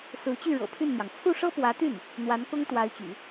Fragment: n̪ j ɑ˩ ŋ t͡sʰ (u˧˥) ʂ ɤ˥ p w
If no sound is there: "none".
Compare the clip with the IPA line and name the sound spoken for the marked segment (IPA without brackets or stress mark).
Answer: u˥˩